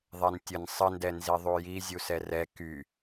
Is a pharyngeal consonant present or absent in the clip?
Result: absent